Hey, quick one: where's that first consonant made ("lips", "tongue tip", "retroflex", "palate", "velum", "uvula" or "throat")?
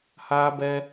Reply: throat